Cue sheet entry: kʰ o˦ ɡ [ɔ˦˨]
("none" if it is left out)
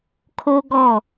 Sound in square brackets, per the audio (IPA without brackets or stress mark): ɔ˦˨